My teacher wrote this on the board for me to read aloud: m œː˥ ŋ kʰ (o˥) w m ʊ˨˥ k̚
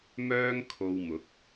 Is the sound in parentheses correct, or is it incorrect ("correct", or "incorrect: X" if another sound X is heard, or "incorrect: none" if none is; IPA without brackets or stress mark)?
incorrect: o˧